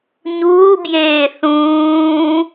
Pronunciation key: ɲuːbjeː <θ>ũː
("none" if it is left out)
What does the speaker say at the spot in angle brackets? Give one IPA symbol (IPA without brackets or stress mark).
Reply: θ